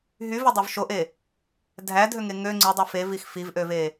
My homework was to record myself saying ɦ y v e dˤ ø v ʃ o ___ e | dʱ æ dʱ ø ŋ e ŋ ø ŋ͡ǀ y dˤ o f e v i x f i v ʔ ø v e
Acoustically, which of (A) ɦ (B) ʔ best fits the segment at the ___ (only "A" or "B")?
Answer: B